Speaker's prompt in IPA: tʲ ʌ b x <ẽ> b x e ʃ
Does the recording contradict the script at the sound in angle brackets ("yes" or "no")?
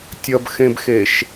no